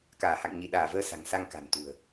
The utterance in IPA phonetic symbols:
k aː˧˩ h a̰˧˨ ŋ ɲ i˧˩ ɗ aː˧˩ v əː˧ s a̤˨˩ ŋ s a˧ ŋ k a̤˨˩ n t̪ ṳ˨˩ ə̯

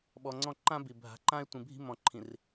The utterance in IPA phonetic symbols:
ɓ ɔ˨ ŋ͡ǀ ɔ̃˦˨ ǃ ã˦ b i˨ bʱ a̤˨ ǃ ã˦ e̯ tʷ ĩ˨ bʱ i̤˦ m ɔ̃˨ ǃʰ ĩ˨ r

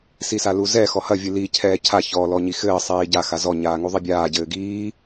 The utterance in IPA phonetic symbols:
s i s a l u z ɛ x ɔ h ɐ vʲ ɨ l i cʰ ɛː cʰ a ç ɔ l ɔ ɲ i x ɘː sˤ iː ɟ a x a z ɔ ɲ aː ŋ u ðˤ i bʲ aː ɟ ɘː ɡ iː

